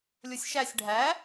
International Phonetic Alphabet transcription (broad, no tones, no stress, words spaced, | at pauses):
lʲosʲʃæsʲ ɖʱæ